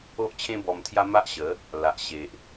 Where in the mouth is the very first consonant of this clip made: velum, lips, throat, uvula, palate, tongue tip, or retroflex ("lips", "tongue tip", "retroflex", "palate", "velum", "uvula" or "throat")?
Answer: throat